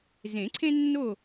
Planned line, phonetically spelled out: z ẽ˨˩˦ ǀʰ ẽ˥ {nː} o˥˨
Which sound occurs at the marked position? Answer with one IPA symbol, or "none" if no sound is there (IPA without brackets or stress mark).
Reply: nː